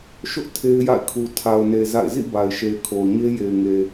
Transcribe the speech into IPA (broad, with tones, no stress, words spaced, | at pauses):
ʃʊ˦ʔ tʰe˦ɪ̯ja̰˦˨ɪ̯kʰu˨ tʰa˨ʊ̯ne˨ za̰˦˨ɪ̯ zḭ˦˨ ba˨ɪ̯ʃe˨ɪ̯kʰo˨ʊ̯ ɲe˦je˨ɪ̯ŋe˨